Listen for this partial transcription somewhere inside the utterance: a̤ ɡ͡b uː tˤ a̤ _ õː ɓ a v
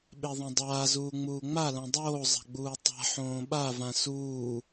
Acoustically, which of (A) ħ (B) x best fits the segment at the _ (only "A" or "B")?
A